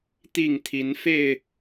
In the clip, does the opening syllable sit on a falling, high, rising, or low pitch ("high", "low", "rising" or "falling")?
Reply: falling